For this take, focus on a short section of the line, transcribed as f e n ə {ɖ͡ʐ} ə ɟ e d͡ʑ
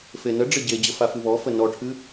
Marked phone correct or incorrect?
correct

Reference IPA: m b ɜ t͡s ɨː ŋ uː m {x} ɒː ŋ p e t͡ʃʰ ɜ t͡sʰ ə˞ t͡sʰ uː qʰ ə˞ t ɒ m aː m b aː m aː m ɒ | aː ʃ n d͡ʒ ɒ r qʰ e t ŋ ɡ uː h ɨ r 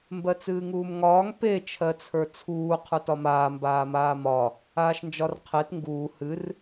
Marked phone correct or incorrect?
incorrect: ŋ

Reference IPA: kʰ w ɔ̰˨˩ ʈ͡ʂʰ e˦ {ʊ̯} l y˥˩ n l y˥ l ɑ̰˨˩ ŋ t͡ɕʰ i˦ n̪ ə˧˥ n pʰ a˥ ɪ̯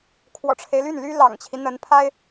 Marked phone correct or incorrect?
incorrect: ɪ̯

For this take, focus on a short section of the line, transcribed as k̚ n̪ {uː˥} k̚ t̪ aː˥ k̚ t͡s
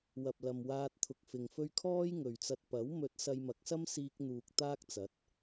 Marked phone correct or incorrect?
incorrect: uː˨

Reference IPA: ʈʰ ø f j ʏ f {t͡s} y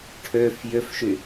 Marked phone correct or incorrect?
incorrect: ʃ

